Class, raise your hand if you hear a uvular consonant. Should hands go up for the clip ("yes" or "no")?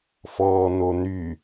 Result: no